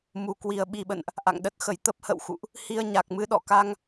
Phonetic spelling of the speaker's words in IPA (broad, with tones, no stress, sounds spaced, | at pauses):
m u˨˩ k w i˨˩ ə̯ ɓ i˨˩ ɓ ə̰˧˨ n ʔ | ʔ a̰˧˨ ŋ ɗ ə˦˥ t̚ x ə˨˩ j t̪ ə˦˥ p̚ h ə̰˧˨ w x ṵ˧˨ ʔ | h i˧ ə̯ ɲ a˨˩ k̚ m ɨ˧ ɗ ɔ̰˧˨ k a˧ ŋ